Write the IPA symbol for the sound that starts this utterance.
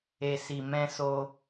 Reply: e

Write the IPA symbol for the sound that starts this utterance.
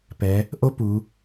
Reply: p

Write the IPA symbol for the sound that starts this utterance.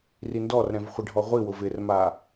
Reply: r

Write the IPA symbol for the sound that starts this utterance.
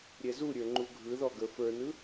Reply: ɾʲ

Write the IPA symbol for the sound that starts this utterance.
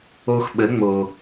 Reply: o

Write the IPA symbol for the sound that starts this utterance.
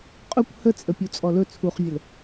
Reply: qʼ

